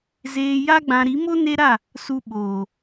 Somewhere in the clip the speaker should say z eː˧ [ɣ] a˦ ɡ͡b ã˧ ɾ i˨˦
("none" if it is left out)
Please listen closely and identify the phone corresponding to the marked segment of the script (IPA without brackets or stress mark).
j